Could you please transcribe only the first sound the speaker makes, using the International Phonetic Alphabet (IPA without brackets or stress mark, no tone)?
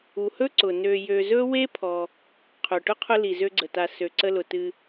u